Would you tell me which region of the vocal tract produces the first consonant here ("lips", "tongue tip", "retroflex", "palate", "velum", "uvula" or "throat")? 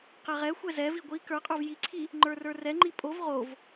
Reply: uvula